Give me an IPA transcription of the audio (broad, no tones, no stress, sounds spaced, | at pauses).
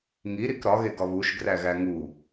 ŋ i ɾ i k ɾ ɒ ɣ e ɡ ɒ β u ʃ ɡ r æ ɣ æ ŋ u